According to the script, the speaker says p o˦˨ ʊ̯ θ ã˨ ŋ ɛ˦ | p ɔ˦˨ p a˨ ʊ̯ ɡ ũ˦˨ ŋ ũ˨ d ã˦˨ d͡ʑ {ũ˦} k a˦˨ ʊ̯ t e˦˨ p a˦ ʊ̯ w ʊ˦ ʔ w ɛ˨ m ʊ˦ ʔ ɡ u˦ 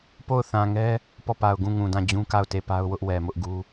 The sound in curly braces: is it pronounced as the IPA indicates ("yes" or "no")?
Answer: yes